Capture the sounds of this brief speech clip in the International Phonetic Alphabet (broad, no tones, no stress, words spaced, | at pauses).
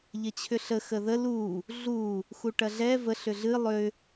ʎɐt͡ɕʰʏɬə xəðə lu | ɮu | xuʈɐɮɛ və ɬʏɮɨ lˠʏ